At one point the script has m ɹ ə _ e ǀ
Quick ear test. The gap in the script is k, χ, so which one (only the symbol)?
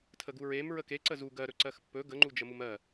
k